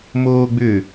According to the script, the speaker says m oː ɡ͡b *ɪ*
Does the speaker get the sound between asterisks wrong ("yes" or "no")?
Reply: yes